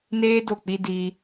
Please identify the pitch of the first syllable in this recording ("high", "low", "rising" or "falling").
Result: high